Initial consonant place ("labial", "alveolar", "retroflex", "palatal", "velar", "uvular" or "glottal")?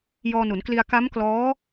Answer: palatal